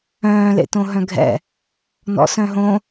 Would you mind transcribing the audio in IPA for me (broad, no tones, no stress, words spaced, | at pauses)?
œ̃ː lḛtõɦœ̃ɡʱɛ̰ | nɔ̰sœ̃ɦõ